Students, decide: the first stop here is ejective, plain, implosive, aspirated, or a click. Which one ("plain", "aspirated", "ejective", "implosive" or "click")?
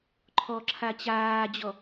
click